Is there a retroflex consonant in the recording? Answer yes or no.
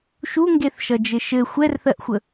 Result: no